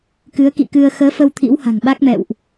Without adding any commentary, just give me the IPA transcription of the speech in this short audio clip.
k ɨ˨˦ ə̯ k ḭ˧˨ k ɨ˧ ə̯ x əː˨˦ f ə˧ w t̪ʰ ḭ˧˥ w h a̤˨˩ ŋ ɓ a˦˥ k̚ m ɛ̰˧˨ w ʔ

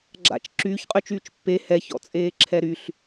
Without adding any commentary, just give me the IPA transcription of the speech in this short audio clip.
ɡ͡ǁ a̰ t͡ʃ ǁ yː ç qʼ y t͡ʃ yː t͡ʃ pː e h ɛ ç ɔ̰ t͡sʼ eː ǁʰ ɛ ɾ y ɬ

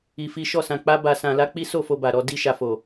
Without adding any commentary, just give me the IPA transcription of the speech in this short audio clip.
i˧ f i˦ ʃ ɔ˦˨ s ã˧ k͡p a˦ b a˧ s ã˧ l a˦ k͡p i˦ s o˦˨ f o˧ b a˨ ɾ ɔ˧ d i˧ ʃ a˨ f o˨

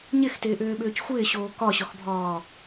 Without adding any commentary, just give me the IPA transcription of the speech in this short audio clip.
ɲ ɪ x t ɪː ʔ ʏː ɓ ʏː c xʷ ɪː ɕ oː k ɒ ɕ ɒ x bʱ ɒː

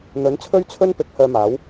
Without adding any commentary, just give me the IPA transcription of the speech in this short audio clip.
n̪ ɵ˨˥ n t͡sʰ ɵ˥ ɥ t͡sʰ ɵ˥ n p ɪ˨˥ k̚ h œː˧ m aː˨˥ w

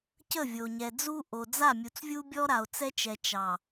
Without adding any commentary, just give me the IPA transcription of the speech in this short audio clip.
c ə˦˨ vʲ o˨ ɲ ɛ˨ d͡z u˦ ʔ o˨ d͡z a˦˨ mʲ u˨ t͡s vʲ u˦ bʲ ɔ˦ ɾ a˨ o̯ t͡s ɛ˦ t͡ʃ ɛ˨ t͡ʃ ɑ˨

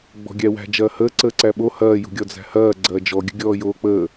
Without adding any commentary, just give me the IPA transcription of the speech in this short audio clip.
ɡ͡b ɔ̤ ɡʲ æ w æ̤ d͡ʒ ɐː h əː ǀ əː ǀ æ ɓ o h ɐː j ṳ ɡʲ ɔ d͡z æ̤ h ɐː ɡ͡ǀ ɐː d͡ʒ ɔ ɡʲ ə̤ ɡʲ ɔː j oː k͡p əː

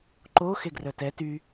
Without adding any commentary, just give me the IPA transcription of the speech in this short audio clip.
ǃ o x e ɡ r œ t ɛ t y

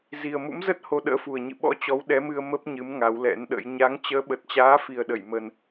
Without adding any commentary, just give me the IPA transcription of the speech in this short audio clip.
z i˨˩ ə̯ m ṵ˧˥ m z ə˦˥ t̚ h o˧ ɗ ə̰ː˧˥ f u˨˩ ə̯ ɲ ɨ̰˧˨ ɓ ɔ̰˧˥ t͡ɕ ɔ˨˦ w ɗ ɛ˨˦ m ɨ˧ ə̯ m ə˦˥ p̚ ɲ ɨ˨˦ m ŋ a˨˦ w l ɛ̰˧˥ n ɗ ə̰˧˥ j ɲ a˨˦ ŋ t͡ɕ əː˨˦ ɓ ə˨˩ t̚ t͡ɕ aː˨˦ f i˨˩ ə̯ ɗ ə˧˩ j m ə˨˩ n

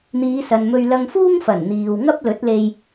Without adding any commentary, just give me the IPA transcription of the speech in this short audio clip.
n̪ iː˨˧ s ɐ˨ n m ɵ˧ ɥ l ɐ˧ ŋ f uː˥ ŋ f ɐ˨˩ n n̪ iː˨ w ŋ ɐ˥ p̚ l ɵ˨˥ t̚ l e˧ j

